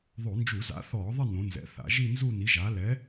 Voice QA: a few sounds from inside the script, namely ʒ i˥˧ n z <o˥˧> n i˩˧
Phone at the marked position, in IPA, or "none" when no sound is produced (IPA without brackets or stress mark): u˥˧